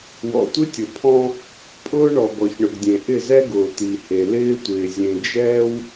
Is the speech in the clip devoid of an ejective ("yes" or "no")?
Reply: no